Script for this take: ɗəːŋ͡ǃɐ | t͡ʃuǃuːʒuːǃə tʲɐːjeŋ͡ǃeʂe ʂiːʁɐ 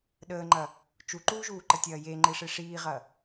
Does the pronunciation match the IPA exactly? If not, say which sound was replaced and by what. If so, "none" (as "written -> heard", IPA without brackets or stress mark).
none